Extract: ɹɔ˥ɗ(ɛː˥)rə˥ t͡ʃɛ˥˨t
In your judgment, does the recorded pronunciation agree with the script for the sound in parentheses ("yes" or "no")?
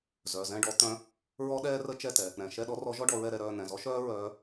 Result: yes